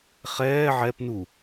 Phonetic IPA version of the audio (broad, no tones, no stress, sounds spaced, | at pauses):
χ ɛː ʕ ɛ p n u